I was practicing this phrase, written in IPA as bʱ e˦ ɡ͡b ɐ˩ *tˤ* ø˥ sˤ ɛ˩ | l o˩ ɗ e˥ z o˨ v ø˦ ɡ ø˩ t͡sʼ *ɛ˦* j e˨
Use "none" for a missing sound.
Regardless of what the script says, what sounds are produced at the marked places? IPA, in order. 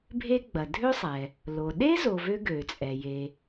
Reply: dʱ, ɛ˩

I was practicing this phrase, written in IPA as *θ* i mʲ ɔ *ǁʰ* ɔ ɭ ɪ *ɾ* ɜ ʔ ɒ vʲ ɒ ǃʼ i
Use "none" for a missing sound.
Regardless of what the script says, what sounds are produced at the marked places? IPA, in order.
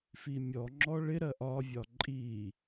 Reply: f, ŋ͡ǁ, ɾ

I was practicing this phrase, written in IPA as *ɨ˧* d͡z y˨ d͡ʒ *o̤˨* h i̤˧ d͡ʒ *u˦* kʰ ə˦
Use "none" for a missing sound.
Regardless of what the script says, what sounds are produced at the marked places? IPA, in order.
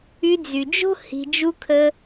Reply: y˧, o̤˦, u˦

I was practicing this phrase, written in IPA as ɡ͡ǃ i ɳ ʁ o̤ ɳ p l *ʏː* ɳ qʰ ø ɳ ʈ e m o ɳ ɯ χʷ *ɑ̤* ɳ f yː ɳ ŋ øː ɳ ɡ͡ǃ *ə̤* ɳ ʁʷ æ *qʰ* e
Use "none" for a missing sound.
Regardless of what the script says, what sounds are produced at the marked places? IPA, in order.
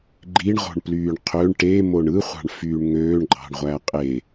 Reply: yː, ɑ̤, ɑ̤, qʼ

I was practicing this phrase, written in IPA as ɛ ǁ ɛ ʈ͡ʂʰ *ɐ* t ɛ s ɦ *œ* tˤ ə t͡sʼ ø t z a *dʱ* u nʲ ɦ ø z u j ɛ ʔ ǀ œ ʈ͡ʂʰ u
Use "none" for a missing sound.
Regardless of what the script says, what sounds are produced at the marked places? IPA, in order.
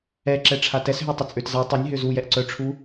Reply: a, ø, tˤ

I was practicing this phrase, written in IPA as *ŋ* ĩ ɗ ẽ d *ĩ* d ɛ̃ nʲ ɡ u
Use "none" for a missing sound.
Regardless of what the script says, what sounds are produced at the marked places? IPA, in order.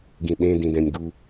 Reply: ɡ, ĩ

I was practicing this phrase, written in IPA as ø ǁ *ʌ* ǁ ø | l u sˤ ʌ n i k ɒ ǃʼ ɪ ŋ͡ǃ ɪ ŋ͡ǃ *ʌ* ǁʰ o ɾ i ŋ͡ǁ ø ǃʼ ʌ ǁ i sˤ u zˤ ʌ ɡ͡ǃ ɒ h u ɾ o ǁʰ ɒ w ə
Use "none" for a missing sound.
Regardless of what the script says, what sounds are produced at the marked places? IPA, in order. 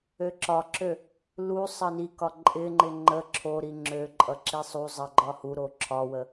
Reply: ɒ, ə

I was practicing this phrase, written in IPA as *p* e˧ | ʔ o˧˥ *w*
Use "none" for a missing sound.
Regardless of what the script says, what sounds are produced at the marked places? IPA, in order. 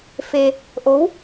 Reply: f, w

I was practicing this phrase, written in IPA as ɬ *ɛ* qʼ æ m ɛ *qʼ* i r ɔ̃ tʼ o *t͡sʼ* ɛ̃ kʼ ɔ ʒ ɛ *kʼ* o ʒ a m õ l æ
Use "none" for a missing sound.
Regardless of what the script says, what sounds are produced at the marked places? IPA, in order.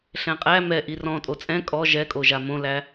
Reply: ɛ̃, ʔ, t͡sʼ, kʼ

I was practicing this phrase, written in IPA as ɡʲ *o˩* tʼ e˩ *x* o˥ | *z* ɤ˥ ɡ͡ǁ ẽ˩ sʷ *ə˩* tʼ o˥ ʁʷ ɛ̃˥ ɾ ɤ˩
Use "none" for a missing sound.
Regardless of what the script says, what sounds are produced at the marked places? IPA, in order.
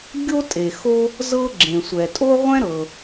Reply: o˥, x, z, ɛ˩

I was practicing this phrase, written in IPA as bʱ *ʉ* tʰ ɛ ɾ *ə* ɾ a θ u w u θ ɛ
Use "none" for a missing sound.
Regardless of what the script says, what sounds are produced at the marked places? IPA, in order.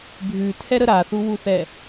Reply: ʉ, ə

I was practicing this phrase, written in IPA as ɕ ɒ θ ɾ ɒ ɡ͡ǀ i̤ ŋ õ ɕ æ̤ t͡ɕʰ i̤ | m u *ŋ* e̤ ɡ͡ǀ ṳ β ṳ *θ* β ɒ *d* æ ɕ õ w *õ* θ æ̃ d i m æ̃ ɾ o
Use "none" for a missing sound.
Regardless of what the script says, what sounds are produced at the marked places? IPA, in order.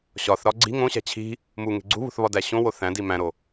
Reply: ŋ, θ, d, o

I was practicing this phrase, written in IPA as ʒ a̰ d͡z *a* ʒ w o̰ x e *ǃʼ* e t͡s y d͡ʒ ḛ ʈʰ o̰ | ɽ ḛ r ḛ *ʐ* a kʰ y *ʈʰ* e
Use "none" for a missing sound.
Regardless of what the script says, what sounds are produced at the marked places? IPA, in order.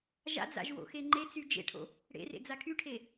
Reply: a̰, ŋ͡ǃ, d͡z, ʈʰ

